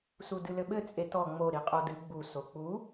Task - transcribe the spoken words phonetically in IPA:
sudɨlɘɓɘ t͡sʼetɔ ŋ͡mo ɾiqʼodɨ ɡ͡bu sok͡pu

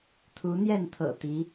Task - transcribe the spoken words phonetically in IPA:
t̪ʰu˧˥n̪jɛ˥˩nt̪ʰɤ̰˨˩ t̪i˧˥

